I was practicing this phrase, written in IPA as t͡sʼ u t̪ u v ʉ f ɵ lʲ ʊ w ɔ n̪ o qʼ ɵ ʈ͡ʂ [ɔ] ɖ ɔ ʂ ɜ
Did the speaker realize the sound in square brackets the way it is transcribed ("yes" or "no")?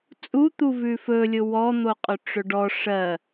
no